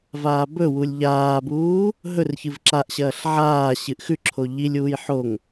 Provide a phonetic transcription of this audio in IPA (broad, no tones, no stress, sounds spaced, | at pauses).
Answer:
v aː b ɵ w u lʲ ʎ aː b uː | ɦ ɵ r ç ɨ v ǁ a ʔ ɕ ɐː ɬ ʕ aː ɕ ɨ ʔ x ʉ ǁʰ o ʎ i lʲ uː j ħ o ŋ